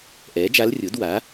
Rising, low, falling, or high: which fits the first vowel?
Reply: rising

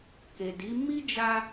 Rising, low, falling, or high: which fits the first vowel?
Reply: low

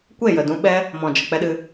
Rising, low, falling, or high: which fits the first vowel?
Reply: falling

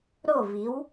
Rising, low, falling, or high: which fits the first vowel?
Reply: falling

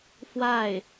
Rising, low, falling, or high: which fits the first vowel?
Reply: falling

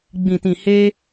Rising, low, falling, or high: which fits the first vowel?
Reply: low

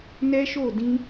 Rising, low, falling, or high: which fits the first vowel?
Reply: high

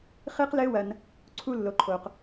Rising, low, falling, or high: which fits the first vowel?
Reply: high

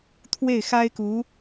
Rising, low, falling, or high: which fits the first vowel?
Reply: falling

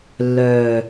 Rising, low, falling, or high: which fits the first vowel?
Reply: low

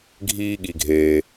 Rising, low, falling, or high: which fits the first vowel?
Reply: high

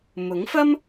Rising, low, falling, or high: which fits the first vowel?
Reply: rising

